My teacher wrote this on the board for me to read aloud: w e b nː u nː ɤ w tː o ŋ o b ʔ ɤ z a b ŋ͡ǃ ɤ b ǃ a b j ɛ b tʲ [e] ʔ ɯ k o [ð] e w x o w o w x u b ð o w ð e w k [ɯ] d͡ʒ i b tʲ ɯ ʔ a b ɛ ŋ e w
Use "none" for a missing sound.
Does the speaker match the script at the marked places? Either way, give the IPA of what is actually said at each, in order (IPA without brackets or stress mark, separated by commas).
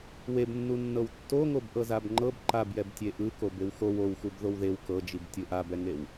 e, b, ɤ